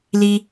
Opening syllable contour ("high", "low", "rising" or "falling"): high